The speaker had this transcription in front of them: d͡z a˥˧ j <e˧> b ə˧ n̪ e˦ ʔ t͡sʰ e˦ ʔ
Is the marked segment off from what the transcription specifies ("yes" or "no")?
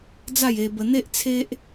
no